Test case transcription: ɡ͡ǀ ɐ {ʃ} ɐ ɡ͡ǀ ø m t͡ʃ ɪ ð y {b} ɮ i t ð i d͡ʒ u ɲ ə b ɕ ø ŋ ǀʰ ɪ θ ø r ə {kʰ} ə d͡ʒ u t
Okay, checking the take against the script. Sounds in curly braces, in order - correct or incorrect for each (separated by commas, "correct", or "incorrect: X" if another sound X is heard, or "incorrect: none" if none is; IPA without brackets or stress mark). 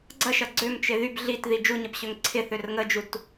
correct, correct, incorrect: ŋ